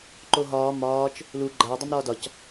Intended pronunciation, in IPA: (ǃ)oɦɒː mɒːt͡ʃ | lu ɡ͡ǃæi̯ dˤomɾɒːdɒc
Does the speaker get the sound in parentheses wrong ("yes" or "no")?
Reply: no